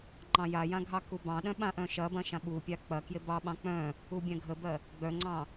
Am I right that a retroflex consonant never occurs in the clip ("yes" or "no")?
yes